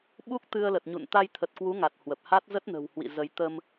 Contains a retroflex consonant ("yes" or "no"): no